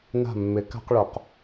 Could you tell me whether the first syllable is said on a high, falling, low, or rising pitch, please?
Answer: falling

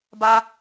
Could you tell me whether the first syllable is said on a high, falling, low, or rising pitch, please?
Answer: high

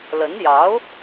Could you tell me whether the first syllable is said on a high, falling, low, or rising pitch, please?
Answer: rising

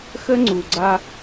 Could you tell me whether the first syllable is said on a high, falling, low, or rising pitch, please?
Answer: high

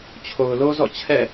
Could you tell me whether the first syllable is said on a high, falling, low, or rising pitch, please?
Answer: low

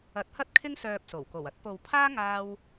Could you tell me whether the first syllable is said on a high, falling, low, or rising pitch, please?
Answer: rising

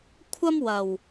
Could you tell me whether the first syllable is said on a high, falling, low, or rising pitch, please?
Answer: high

